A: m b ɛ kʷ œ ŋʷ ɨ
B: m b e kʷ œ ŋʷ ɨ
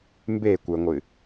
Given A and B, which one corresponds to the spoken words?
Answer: B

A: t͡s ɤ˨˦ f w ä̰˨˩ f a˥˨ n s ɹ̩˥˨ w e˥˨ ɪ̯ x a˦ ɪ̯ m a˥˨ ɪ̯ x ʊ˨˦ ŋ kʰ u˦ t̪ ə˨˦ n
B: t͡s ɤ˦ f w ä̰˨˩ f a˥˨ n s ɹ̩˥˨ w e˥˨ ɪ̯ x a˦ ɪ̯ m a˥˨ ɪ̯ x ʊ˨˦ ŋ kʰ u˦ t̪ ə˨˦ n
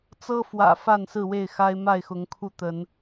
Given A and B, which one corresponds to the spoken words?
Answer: B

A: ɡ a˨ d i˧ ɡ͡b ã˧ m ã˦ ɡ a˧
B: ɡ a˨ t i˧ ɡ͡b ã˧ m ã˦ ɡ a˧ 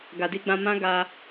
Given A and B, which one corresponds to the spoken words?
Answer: A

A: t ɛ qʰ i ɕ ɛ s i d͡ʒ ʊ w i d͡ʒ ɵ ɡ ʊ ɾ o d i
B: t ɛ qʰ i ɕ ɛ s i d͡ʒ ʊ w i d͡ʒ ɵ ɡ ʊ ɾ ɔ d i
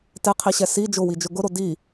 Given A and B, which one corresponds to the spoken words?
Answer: A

